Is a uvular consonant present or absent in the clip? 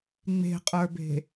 present